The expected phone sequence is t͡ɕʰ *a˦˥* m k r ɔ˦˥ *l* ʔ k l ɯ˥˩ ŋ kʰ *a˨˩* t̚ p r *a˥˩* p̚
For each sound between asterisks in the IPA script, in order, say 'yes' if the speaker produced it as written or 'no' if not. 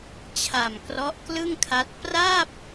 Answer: no, no, no, yes

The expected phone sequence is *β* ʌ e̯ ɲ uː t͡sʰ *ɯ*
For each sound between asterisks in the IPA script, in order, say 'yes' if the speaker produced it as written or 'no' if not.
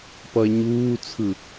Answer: no, yes

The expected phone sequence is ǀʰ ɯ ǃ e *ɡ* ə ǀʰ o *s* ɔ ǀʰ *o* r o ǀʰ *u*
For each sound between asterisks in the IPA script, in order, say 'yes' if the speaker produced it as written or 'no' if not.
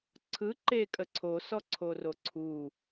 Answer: no, yes, yes, yes

